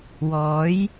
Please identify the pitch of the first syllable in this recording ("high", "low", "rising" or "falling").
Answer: rising